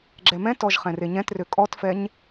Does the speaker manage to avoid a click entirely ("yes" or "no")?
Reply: no